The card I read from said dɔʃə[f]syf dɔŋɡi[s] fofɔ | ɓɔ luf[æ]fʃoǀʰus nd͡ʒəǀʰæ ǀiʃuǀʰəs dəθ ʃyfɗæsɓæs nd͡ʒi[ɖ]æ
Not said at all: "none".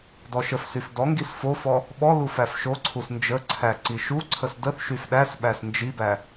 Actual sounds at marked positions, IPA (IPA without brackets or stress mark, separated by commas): f, s, æ, b